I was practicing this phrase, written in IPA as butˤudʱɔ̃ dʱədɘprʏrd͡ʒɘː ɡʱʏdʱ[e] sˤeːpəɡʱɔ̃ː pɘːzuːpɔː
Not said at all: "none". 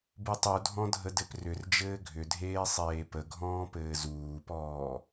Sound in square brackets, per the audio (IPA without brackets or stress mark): eː